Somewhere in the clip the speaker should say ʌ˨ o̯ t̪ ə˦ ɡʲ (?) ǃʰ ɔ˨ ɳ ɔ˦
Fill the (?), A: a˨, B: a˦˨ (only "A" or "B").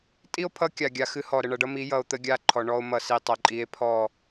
B